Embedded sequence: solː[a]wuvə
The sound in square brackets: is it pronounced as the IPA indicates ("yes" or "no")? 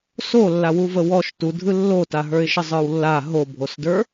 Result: yes